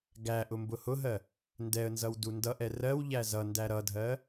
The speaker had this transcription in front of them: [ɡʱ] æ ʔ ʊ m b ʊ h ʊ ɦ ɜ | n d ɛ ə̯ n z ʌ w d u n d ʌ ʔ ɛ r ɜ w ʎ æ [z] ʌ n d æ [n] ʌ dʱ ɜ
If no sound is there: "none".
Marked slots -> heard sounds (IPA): ɡ, z, ɾ

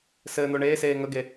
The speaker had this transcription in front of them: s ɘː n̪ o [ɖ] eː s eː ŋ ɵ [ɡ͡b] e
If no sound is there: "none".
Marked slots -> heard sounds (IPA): ɳ, ɡ

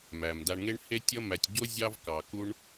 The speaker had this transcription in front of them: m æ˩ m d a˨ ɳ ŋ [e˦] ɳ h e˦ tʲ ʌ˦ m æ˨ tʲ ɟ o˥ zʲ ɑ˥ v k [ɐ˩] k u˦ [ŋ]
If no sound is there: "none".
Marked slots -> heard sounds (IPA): e˦, ɑ˩, ɳ

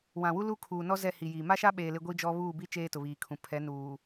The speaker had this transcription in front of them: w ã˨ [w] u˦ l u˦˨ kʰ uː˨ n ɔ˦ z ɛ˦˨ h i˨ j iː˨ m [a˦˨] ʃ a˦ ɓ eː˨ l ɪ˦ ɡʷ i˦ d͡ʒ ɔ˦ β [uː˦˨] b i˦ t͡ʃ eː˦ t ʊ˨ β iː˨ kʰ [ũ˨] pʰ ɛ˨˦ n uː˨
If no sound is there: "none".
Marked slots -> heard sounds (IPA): w, a˦, uː˦˨, ũ˨

